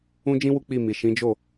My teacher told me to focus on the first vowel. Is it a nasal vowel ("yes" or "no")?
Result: yes